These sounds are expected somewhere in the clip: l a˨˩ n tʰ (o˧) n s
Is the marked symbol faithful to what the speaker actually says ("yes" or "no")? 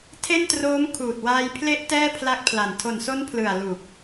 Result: no